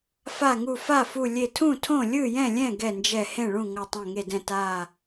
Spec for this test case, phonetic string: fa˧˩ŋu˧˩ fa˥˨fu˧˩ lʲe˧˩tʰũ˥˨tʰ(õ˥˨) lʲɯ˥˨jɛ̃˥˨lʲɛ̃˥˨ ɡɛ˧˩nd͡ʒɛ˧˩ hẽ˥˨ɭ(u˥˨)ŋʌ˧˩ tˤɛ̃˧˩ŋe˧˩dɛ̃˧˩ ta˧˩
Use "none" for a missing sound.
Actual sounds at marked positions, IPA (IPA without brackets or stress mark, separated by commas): õ˥˨, ũ˥˨